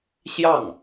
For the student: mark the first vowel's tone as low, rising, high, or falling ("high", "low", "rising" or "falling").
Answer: falling